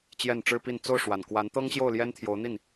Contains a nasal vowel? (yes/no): no